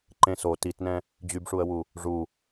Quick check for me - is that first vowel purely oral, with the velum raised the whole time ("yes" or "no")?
no